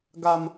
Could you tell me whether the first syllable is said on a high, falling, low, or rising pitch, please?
high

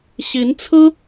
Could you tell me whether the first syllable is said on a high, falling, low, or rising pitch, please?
rising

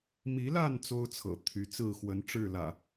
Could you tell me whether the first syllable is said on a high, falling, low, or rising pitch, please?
rising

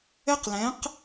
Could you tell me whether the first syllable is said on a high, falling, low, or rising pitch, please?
high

